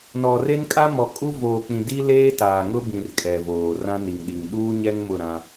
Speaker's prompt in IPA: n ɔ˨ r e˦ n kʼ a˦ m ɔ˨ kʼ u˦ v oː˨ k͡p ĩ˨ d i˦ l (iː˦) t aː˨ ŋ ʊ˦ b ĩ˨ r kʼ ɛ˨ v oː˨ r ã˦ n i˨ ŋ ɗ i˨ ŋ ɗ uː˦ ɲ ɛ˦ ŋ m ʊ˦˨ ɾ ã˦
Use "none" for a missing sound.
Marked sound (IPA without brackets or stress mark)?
eː˦